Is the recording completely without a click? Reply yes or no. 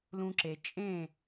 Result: no